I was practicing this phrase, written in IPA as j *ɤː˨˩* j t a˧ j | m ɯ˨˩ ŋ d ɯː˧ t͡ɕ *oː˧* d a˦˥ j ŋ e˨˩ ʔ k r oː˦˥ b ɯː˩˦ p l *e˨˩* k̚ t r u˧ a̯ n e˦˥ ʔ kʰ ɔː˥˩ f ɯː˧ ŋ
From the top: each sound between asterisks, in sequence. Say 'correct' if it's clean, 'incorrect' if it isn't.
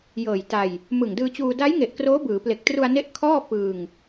correct, incorrect, correct

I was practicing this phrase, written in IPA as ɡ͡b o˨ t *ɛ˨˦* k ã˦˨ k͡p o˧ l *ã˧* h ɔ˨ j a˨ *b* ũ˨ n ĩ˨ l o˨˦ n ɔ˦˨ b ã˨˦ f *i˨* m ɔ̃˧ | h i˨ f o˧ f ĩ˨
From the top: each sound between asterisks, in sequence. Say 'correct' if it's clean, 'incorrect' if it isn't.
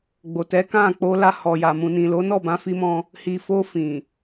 correct, incorrect, incorrect, incorrect

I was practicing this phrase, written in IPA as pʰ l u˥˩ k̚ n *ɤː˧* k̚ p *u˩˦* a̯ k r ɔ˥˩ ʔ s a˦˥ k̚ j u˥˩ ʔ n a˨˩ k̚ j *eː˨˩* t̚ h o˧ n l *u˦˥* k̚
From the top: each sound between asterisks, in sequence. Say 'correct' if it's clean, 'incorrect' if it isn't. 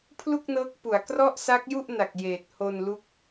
incorrect, correct, correct, correct

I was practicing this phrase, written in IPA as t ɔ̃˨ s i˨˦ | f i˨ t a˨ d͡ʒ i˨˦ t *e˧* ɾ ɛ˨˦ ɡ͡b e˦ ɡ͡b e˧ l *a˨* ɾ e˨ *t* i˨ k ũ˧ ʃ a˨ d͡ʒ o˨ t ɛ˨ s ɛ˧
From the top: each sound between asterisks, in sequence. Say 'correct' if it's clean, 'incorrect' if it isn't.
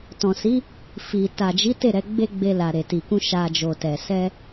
incorrect, correct, correct

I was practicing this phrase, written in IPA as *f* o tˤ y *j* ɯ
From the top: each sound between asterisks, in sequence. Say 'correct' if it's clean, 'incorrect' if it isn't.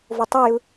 incorrect, correct

